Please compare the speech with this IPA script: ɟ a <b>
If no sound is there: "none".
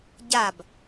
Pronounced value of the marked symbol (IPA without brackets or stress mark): b